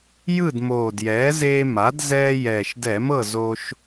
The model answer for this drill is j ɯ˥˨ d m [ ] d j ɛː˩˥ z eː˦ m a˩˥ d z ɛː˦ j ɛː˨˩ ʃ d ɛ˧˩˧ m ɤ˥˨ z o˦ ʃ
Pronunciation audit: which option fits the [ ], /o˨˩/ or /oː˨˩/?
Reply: oː˨˩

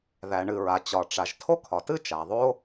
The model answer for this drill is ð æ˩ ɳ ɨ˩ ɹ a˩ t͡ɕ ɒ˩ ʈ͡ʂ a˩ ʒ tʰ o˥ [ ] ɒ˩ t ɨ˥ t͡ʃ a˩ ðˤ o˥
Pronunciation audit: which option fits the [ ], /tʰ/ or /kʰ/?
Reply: kʰ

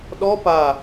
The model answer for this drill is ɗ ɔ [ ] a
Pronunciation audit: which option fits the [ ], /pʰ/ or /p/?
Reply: p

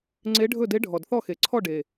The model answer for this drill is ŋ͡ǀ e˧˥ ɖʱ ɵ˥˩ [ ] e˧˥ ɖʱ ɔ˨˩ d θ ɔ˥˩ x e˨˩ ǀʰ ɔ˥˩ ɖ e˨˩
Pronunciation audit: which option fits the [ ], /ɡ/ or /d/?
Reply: d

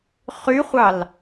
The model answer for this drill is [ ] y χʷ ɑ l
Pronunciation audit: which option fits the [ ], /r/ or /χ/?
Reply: χ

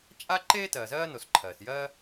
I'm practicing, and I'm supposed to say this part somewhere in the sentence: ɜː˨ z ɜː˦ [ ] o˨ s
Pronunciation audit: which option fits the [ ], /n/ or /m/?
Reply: n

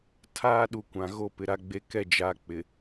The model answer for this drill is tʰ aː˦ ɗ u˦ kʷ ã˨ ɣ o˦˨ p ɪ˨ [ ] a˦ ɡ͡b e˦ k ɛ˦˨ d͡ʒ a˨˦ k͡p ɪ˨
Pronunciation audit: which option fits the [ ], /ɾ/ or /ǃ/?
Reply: ɾ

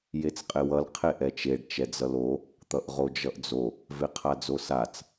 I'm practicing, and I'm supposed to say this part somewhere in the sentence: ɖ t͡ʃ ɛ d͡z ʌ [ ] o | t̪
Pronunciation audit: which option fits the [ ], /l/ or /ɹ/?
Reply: l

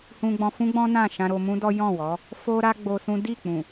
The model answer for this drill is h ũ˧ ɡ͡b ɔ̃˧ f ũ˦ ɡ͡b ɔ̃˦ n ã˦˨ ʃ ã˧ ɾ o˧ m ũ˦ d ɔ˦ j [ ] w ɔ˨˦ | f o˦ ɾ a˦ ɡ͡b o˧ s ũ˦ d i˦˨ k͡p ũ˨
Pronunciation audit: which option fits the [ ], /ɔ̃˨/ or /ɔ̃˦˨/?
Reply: ɔ̃˦˨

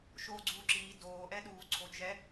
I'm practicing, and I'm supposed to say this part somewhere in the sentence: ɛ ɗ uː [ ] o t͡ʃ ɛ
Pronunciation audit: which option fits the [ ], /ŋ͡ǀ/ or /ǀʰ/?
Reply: ǀʰ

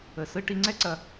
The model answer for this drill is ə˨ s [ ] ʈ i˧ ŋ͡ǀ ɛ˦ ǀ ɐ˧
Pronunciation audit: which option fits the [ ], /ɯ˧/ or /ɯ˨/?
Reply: ɯ˧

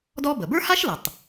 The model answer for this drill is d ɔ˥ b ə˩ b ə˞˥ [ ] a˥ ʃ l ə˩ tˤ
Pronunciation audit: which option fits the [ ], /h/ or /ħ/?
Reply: h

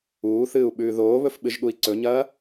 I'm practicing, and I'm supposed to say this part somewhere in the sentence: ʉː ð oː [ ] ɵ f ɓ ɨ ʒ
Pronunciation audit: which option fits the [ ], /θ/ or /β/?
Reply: β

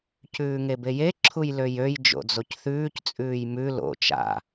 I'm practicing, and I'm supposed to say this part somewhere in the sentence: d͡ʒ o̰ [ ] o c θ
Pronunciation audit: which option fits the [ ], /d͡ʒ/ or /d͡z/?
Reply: d͡z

